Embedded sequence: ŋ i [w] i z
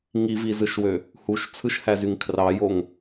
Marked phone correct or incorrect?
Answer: incorrect